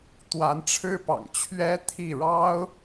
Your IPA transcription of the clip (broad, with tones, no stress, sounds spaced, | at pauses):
t̪ w a˧˥ n ʈ͡ʂʰ ɻ̩˥ p ɑ̰˨˩ ŋ t͡ɕʰ ɥ ɛ˥ t̪ʰ i˥˩ ɻ ɑ˥ ʊ̯